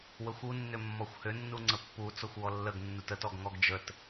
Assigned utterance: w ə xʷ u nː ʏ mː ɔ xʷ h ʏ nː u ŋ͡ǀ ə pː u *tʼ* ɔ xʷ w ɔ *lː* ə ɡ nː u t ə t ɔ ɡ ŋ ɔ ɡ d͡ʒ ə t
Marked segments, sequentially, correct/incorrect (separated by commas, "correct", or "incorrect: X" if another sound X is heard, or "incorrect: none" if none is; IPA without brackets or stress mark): incorrect: t͡s, correct